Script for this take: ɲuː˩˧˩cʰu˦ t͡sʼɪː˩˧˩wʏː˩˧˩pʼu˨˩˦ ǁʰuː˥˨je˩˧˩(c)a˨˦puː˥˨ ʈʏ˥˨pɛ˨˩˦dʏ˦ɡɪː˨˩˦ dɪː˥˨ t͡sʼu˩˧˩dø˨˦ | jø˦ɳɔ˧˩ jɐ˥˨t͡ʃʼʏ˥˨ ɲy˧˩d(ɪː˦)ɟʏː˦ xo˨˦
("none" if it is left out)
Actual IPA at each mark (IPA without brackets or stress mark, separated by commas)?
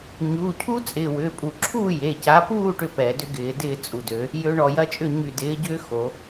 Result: c, ɪː˨˦